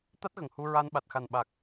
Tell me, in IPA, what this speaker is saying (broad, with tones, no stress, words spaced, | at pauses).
t̪a˦˥t̚ɣə˨˩ŋhu˧ɹa˧n ɓa˨˩t̚xa˨˩nɓa˨˩k̚